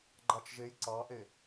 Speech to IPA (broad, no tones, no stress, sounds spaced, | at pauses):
ɡ͡ǃ ɑ t͡ʃ ʒ e j ǀ ɑ ʔ e